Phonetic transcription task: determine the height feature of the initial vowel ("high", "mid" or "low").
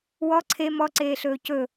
mid